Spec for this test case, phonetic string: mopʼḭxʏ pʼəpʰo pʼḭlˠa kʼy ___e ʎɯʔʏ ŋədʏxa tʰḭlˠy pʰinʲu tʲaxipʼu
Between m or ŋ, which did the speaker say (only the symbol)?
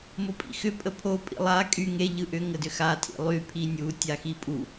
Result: ŋ